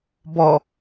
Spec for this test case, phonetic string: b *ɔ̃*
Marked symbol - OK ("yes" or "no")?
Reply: no